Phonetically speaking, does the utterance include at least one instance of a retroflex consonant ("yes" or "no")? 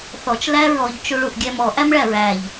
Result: yes